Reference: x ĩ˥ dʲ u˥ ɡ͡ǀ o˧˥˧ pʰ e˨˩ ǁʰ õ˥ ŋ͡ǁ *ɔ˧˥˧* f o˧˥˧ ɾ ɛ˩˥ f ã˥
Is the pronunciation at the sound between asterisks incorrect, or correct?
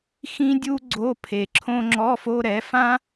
correct